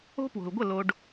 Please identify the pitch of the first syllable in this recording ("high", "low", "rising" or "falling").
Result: high